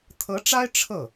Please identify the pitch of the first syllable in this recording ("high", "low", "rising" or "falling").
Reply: rising